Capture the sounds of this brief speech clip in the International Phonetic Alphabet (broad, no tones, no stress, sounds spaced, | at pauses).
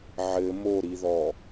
ʕ ɘ m o ɾ i ð ɔ